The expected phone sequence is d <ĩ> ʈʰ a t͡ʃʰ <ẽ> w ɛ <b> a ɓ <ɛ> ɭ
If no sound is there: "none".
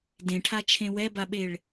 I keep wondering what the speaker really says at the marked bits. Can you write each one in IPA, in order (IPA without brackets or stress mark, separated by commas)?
ẽ, ẽ, b, e